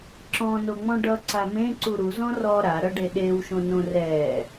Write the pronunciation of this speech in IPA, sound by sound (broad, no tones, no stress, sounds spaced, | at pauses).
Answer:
ǁ ɔ̃ n o ŋ͡m ɔ̃ ɖ ʌ ǀ a m ẽ ǀ u ɾ u z ɔ̃ r ɔ ɾ a ɾ ʌ ɖ e ɗ e w ʃ õ n õ r ɛ